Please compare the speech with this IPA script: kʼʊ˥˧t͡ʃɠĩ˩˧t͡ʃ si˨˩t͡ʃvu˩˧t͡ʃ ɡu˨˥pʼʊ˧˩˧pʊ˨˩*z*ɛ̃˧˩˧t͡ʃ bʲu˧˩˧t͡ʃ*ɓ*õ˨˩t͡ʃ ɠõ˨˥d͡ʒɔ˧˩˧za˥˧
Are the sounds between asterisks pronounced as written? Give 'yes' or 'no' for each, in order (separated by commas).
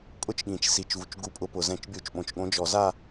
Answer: yes, yes